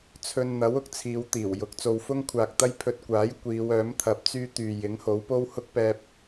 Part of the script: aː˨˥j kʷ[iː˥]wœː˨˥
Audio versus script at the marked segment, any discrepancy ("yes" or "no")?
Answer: yes